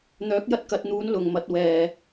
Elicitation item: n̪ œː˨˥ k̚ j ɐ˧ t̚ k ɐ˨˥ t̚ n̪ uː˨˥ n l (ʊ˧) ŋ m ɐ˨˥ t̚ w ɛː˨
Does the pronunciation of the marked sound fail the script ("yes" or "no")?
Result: yes